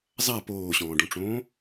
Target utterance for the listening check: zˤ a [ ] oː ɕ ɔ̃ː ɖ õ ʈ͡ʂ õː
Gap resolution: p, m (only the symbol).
p